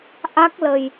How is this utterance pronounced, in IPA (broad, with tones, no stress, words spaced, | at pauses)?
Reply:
ʔa˦˥k̚lə˨˩j